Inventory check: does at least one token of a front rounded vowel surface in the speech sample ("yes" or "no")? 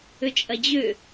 yes